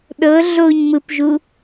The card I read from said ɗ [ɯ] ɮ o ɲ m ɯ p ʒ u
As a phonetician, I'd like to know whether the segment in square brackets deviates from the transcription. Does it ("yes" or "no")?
yes